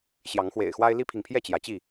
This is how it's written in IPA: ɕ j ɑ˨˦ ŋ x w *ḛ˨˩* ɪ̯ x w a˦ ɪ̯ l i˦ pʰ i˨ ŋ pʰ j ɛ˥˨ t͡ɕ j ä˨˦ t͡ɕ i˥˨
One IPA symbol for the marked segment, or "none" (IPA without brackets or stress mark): ḛ˨˩